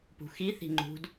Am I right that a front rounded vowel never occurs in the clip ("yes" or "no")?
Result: yes